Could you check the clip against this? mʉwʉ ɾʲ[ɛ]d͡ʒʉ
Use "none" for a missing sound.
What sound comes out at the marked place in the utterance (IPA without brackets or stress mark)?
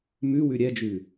ɛ